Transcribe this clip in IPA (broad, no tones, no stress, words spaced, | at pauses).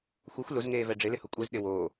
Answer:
xʷɛxʷ lʊzŋeːvɛ ɖ͡ʐɪlɪhʊ kʷʼezɗɪ woː